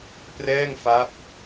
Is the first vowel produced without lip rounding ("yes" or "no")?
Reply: yes